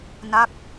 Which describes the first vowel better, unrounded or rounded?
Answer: unrounded